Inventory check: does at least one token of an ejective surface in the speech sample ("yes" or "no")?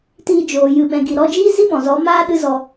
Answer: no